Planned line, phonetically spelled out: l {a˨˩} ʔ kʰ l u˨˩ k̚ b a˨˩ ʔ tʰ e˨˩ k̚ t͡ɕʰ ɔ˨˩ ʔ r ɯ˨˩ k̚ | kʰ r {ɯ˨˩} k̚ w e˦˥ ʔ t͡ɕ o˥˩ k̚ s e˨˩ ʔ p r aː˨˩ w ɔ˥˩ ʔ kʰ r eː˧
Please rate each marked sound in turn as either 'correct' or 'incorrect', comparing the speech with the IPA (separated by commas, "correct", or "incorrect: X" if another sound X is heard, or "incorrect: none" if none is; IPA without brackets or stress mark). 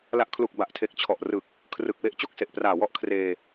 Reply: correct, correct